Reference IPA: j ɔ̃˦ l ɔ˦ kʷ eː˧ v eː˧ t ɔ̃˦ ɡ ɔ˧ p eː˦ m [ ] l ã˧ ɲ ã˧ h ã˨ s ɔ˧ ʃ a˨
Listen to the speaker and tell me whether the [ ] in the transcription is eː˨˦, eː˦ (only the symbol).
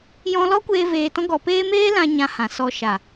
eː˦